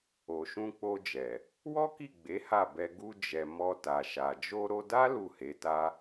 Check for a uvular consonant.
absent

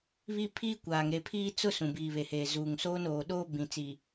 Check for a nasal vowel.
present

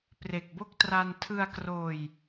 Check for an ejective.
absent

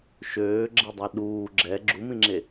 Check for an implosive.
present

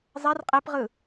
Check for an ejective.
present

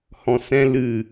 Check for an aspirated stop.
absent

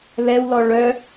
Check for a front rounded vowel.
present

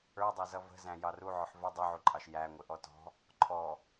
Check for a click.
present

